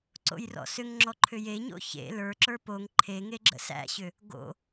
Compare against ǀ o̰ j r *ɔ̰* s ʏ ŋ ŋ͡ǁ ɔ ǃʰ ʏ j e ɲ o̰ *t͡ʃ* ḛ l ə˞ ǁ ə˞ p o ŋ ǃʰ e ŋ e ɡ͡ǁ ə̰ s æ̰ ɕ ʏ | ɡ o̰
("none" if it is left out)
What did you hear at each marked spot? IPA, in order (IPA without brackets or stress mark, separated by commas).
ɔ̰, ç